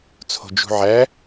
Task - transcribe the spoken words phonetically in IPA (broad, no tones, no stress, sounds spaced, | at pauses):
t͡sʰ o̤ d͡ʒ ṳ ʕ æ